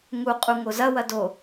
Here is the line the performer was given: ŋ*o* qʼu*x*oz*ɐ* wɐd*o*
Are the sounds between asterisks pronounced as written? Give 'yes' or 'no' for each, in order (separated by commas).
no, no, yes, yes